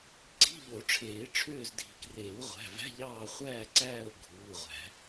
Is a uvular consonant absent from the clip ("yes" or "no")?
no